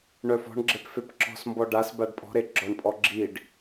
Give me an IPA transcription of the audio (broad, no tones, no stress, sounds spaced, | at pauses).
ɳ œ f ɔ̤ ɳ ɡ͡ǁ e p f e p ǁ ɔ̤ s m b ɔ ɖ a s b a ɖ pʼ ɔ̤ ɾ e ɡ͡ǁ ɔ ɳ pʼ ɔ ɡ͡ǁ i ɖ